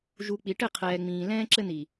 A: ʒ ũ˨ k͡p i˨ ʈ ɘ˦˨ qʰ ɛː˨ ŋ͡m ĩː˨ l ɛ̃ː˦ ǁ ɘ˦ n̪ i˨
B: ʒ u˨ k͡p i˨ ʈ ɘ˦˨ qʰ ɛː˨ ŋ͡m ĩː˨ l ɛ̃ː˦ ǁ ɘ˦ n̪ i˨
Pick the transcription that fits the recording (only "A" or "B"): B